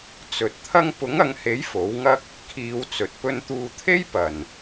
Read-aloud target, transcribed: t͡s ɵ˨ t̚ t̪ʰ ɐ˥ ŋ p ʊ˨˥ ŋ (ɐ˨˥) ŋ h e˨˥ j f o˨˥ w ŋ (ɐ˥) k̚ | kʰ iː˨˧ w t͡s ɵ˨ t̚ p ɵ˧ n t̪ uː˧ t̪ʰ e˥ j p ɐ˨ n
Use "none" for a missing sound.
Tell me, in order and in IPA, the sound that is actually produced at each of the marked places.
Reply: ɐ˨˧, ɐ˥

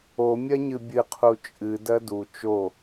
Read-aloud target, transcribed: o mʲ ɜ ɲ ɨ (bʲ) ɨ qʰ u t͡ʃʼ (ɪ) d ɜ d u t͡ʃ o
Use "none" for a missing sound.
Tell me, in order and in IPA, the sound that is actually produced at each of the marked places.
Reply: bʲ, ɨ

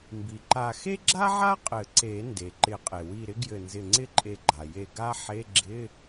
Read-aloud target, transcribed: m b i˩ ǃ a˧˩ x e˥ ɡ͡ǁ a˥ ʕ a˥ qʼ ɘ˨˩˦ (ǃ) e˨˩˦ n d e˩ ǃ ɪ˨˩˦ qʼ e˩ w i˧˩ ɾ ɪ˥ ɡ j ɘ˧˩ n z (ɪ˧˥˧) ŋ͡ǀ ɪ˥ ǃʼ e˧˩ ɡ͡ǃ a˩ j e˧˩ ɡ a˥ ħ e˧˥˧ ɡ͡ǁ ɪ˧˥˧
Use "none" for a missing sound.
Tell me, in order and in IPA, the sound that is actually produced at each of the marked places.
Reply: ǀ, ɪ˧˩

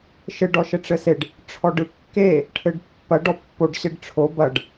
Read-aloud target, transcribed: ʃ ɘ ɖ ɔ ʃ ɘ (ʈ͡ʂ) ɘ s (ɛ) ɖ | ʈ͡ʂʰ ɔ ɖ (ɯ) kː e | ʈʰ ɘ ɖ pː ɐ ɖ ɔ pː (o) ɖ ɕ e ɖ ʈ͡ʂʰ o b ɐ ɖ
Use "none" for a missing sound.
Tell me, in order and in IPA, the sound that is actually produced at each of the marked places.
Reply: ʈ͡ʂ, e, ɯ, o

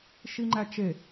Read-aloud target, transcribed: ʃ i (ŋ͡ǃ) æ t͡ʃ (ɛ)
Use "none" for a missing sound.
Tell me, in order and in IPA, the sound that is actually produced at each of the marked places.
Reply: ŋ͡ǃ, e

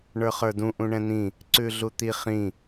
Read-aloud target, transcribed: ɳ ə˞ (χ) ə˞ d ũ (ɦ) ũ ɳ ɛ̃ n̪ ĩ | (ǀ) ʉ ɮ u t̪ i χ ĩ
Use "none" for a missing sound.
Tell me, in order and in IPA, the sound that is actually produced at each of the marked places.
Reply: χ, ʔ, ǀ

